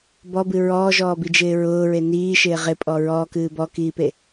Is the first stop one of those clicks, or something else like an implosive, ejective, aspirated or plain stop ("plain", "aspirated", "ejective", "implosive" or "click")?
plain